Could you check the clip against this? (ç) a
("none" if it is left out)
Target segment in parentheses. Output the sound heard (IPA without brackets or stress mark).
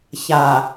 ç